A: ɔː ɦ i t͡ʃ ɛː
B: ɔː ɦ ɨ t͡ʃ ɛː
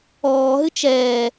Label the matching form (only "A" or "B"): B